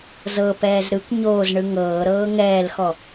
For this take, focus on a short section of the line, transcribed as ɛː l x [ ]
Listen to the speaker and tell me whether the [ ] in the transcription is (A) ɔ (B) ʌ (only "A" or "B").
A